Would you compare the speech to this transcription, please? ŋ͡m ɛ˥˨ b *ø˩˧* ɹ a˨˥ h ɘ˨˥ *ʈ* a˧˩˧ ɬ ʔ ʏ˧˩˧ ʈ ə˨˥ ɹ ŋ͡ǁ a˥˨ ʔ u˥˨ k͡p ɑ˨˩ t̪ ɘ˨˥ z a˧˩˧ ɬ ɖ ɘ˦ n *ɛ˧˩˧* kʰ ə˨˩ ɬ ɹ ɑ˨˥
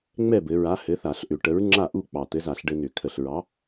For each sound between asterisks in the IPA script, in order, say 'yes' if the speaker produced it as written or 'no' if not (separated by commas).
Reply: no, no, no